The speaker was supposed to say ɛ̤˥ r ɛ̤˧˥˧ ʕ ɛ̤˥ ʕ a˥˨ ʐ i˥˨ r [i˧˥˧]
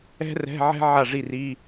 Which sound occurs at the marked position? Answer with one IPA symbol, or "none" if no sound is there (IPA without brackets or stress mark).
i˧˥˧